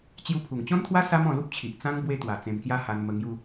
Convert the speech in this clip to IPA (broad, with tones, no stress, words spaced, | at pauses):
t͡ɕju˧pʰu˨˩ŋt͡ɕɔ̃˦nt̪ʰwa˦ sa˦mɔ̃˧lu˦p̚t͡ɕʰi˨ʔ t͡sã˦ŋ bwe˧t̪wa˨˩ t͡sẽ˧mkja˦ha˧n mə˧ ŋju˧